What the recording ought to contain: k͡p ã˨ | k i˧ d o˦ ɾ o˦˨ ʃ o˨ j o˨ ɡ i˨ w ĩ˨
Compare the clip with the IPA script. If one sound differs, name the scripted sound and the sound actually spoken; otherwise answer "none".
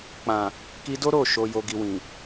none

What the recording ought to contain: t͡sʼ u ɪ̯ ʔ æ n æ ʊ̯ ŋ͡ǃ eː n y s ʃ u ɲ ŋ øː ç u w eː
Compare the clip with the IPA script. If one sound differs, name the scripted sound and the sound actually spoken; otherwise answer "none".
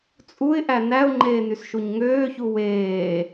none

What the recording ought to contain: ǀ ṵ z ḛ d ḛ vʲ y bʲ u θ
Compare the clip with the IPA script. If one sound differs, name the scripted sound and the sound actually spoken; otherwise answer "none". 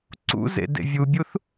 y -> u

